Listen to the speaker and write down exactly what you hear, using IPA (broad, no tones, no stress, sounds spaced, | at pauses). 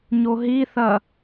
ɲ o ɦ i θ ɐ